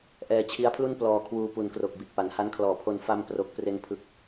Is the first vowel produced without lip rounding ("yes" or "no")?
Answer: yes